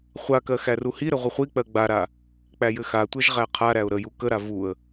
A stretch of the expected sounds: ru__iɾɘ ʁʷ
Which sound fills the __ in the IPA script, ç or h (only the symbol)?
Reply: h